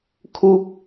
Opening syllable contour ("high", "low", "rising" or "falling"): low